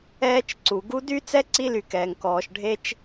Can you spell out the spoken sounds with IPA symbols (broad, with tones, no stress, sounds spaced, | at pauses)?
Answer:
ɛː˦ t͡ʃ ǀ u˩ ɡ u˦ d y˥ t͡s ɛ˥ ǀ i˥ l y˨ k ɛː˩ ŋ k ɔː˩ ʃ ɖʱ e˥ t͡ʃ